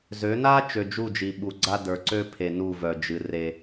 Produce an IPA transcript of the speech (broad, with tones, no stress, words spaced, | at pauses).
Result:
zø˨˦na˦ t͡ʃø˨d͡ʒu˦˨d͡ʒi˨ ɓu˨ɡ͡ǀa˦də˞˨ ǀø˦pʰe˨ nu˦˨vœ˨ d͡ʒɨ˨re˦